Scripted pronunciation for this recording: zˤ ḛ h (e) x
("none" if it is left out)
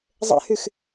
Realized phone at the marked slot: y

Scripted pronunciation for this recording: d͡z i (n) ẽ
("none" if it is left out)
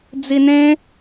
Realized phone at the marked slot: n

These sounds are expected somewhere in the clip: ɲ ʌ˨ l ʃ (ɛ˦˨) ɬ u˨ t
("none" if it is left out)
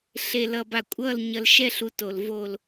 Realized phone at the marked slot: ɛ˦˨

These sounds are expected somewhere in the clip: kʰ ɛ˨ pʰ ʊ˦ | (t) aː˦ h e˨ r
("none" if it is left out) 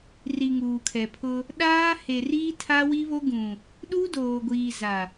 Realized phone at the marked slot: ɗ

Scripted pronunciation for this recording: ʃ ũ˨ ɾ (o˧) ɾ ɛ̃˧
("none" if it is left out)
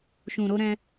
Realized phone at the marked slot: o˧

